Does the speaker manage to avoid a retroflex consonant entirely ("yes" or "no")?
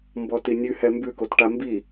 no